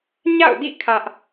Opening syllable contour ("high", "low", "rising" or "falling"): falling